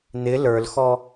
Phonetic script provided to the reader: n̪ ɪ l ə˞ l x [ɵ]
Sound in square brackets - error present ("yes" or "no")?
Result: yes